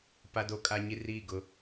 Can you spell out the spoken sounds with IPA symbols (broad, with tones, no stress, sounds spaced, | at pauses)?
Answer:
p a˦ d o˦ kʼ a˦ ɲ i˦ r iː˦˨ ɡ ʊ˦